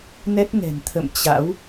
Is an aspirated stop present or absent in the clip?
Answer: present